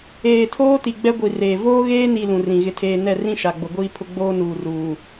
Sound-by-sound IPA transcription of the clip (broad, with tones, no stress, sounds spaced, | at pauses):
eː˨ tʰ oː˦ t i˨ ɡ͡b ɛ˦ ɡʷ i˨ r eː˨ v oː˦ ɣ eː˦ n i˨ l ũ˨ r ĩ˨ ɣ ɪ˨ tʰ eː˨ n ɛ˦˨ r ĩ˦ ʃ a˨ ɡ͡b ʊ˨ ɡʷ iː˦ pʰ ʊ˦ ɡ͡b oː˦ n uː˨ r uː˨